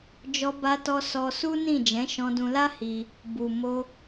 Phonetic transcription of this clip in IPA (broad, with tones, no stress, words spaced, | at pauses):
d͡ʒɔ˧ba˧tɔ˧ sɔ˧su˦nĩ˦˨ d͡ʒɛ̃˨˦ʃɔ̃˧dũ˧la˦ hi˧ | bu˨ mo˧